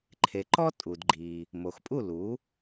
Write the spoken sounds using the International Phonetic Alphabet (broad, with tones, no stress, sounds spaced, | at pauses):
ǃʰ e˩ ǃ ɔ˥ tʼ u˩ d ɡ͡ǃ i˩ | m o˩ x pʼ u˥˩ l u˩˥